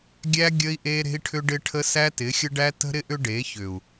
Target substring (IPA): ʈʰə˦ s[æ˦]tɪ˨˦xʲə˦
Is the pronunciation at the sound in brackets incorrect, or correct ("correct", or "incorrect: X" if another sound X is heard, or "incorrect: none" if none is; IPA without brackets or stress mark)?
correct